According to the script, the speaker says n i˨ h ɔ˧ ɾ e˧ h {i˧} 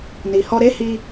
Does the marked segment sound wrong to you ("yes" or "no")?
no